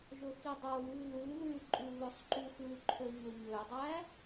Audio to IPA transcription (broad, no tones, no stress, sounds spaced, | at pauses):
ʒ ɵ x i dˤ o β ʉ l ʉ ð ʉ ǃʼ ʉ β ɵ sˤ ǃ u x ʉ ǃʰ ø ɲ ɵ ɲ ø dˤ æ